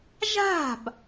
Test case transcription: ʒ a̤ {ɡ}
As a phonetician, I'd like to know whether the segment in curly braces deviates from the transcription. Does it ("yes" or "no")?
yes